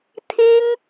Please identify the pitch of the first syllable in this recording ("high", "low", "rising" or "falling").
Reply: high